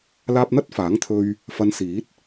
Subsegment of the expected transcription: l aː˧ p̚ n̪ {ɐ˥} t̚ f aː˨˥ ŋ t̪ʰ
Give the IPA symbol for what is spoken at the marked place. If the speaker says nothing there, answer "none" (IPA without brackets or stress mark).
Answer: ɐ˥